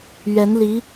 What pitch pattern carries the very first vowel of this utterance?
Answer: rising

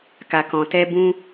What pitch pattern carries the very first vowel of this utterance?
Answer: low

